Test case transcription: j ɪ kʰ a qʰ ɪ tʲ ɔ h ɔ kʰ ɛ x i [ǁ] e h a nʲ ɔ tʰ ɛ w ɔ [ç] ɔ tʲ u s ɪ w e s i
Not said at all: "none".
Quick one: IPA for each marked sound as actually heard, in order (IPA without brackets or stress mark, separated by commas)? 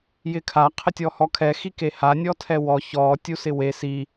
k, ç